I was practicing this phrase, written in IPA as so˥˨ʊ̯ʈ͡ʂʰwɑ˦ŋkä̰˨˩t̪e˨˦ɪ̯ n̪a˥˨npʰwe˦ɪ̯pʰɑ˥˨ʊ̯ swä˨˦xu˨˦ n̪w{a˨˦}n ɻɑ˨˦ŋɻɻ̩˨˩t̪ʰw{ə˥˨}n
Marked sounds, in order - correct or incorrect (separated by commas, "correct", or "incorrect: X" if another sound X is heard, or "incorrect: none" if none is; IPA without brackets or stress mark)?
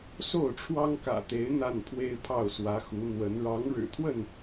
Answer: incorrect: ə˨˦, correct